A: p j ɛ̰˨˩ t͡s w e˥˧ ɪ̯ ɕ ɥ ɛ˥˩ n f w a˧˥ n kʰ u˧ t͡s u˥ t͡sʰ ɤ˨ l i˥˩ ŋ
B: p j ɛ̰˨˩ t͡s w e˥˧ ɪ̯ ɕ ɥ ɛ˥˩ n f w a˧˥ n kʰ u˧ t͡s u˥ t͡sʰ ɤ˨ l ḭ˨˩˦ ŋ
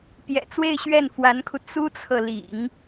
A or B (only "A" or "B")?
B